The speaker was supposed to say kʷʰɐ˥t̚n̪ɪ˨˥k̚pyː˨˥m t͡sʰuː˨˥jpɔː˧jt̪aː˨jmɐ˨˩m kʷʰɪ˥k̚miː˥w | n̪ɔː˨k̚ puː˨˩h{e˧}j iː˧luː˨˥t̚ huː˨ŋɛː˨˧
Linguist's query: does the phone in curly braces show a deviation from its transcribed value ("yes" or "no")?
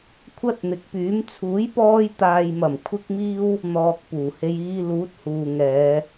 no